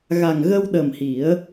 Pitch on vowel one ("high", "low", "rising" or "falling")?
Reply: low